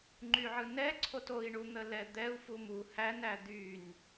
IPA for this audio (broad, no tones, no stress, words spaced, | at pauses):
ŋ͡ǃyʕɯnɛǀʰot oi̯ɳu n̪əlɛd̪ɛu̯fum u hænæ d̪yn